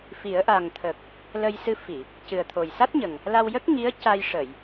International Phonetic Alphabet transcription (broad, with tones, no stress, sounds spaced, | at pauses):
f i˨˩˦ ə̯ ʔ a˨˩ ŋ t̪ʰ ə˨˩ k̚ | l ə˧ j s ɨ˧ f i˨˩˨ | c ɨ˨˩ ə̯ t̪ʰ o˨˩ j s a˦˥ t̚ ɲ ə˨˩ ŋ | l a˧ w j ə˦˥ k̚ ŋ i˧˥ ə̯ c a˧ j ʂ ə˨˩˨ j